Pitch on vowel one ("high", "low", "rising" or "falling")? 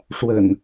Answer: low